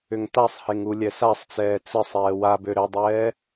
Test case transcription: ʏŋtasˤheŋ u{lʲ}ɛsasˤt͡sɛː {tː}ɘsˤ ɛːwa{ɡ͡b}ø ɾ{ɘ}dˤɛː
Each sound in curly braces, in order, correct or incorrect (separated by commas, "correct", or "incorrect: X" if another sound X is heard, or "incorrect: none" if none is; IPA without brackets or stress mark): correct, incorrect: t͡s, incorrect: b, correct